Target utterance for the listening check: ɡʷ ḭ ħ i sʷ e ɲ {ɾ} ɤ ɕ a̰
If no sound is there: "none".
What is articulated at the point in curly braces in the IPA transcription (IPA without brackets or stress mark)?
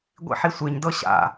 d